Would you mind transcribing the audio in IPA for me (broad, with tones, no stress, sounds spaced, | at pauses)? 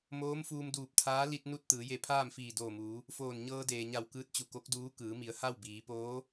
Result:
m oː˧˥ m f uː˧ m d uː˧˩ p̚ t̪ʰ aː˧˥ l i˧ t̚ n u˥˨ t̚ t̪ ɯː˩˧ j e˧˩ pʰ aː˥˨ m f iː˧˩ d oː˧˩ m uː˩˧ | f oː˧˩ n ɲ ɤː˧ d eː˩ ɲ a˧˩ w k ɯː˧˥ t̚ t͡ɕ u˩ k o˧˥ k̚ d uː˧˥ k ɯː˩˧ m i˩˧ ə̯ h a˥˨ w b iː˩˧ p oː˧˥